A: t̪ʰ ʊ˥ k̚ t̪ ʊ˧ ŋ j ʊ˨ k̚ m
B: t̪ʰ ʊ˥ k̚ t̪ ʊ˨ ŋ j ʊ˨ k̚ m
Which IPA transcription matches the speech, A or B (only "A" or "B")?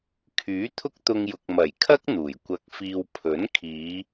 A